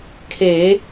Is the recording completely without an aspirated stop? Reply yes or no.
no